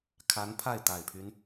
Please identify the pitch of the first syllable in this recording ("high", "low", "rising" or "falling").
rising